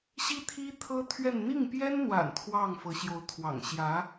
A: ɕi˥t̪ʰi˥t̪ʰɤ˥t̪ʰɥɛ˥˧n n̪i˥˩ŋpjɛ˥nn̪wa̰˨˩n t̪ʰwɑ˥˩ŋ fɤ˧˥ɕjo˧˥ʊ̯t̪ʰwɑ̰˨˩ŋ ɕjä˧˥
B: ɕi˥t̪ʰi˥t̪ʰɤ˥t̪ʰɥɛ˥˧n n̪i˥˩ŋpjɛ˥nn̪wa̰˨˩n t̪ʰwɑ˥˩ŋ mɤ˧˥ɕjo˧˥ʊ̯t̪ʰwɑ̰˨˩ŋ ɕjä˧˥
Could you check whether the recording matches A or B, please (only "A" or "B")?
A